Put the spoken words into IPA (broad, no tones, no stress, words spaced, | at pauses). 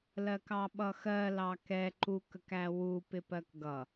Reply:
lɜkɑɓʌxɜ lɑkɛ ǃuk əkæwu pɪpɜkɡʌ